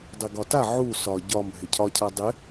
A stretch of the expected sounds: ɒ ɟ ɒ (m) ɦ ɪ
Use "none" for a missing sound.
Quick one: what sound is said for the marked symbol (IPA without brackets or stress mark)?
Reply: m